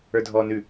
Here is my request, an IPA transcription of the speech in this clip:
ə˞ dʱ ɔː n ʉ

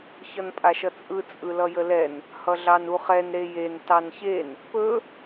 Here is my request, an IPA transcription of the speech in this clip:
ç ʌ n pʼ a ʃ ʌ t͡sʼ ɯ t͡sʼ ɯ l ʌ j ə l ɛ n | h ʌ ɮ ɑ n u χ ɛ n ɾ e j e n t ɑ n ç e n | p ɵ

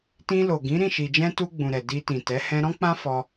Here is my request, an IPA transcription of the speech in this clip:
t ĩ˧ l o˨ ɡ ĩ˨˦ ɾ ĩ˦˨ ʃ i˨ d͡ʒ ɛ̃˧ t u˧ ɡ͡b ũ˨ ɾ ɛ˨ d i˧ t ĩ˨ t ɛ˨˦ h ɛ̃˧ ɾ ɔ̃˦ k͡p ã˦ f ɔ˧

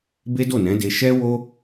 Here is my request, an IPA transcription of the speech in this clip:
b e˦ d o˦˨ n ɛ̃˨˦ d e˧ ʃ ɛ˦ w o˦

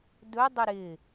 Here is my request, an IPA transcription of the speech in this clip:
d ɵ dˤ ɪ ɾ ɪ

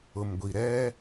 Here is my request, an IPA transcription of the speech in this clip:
ʊ˨ m ɡʷ i˨ ɾ ɛ˦

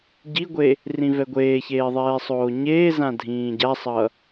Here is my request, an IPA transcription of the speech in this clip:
ɟ i ɡʷ e | r ĩ v ɛ ɡʷ eː ç eː ðˤ ɛː sˤ oː ɲ eː z ã dʱ ĩː ɟ a sˤ ʌ

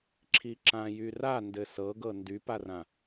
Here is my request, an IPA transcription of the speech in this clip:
ǁʰ i ǁ ã j y r a n d ɘ s ɤ ɡ ɤ n d y p a r ã

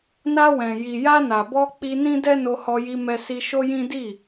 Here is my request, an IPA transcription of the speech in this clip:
n a˧ w ɛ̃˨ j i˨ j a˧ n a˨ b ɔ˧ k͡p i˧ n ĩ˦ d ɛ˦ n o˧ h ɔ˧ j i˧ m ɛ˧ s i˧ ʃ o˦ j ĩ˦ d i˦˨

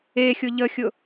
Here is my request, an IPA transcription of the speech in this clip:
e xʲ ʊ ʎ ə xʲ ʊ

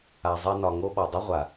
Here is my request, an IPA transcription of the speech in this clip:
a˨ zˤ e˧ n ɒ˨ ŋ o˧ ɓ ɒ˨ dˤ ə˦ ʁʷ a˨

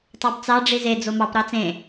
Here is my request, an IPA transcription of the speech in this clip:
tˤ ɑ b t͡s ɑ ɖ͡ʐ i z e d͡z o m ɑ p ɾ ɑ t͡s ẽ

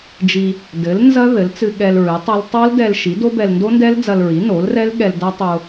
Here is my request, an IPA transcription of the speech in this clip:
d͡ʒ i˧ | d ɘ˩˥ l n z ɐ˦˥ ð ɘ˩˥ l t͡s ɨ˧ ɠ ɛ˧ l ɹ ɨ˩˥ tˤ ɐ˦˥ l tˤ o˦˥ l d ɛ˧ l ʃ i˩˥ d o˦˥ b ɛ˧ l n d o˦˥ n d ɛ˦˥ l d͡z ɐ˧ l ɹ i˩˥ n o˩˥ l r ɛ˦˥ l ɠ ɛ˧ l d ɐ˦˥ tˤ o˧

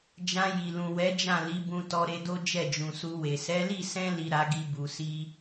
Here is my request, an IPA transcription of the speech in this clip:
d͡ʒ ã˧ j i˨ l ũ˨ w ɛ˨˦ d͡ʒ ã˦˨ l i˨˦ b ũ˧ t ɔ˧ ɾ e˧ d o˦ d͡ʒ ɛ˦˨ d͡ʒ ũ˨ s u˧ w e˨ s ɛ˨˦ l i˦˨ s ɛ̃˧ l i˨ ɾ a˧ ɡ i˧ b u˨ s i˧

